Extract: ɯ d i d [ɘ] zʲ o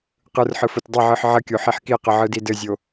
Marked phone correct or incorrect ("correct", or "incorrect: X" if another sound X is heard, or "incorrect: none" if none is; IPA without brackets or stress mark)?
correct